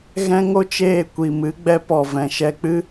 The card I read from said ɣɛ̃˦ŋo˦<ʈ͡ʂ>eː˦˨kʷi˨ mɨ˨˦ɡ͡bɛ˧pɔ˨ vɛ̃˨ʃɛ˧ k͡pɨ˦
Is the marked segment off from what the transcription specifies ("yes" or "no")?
yes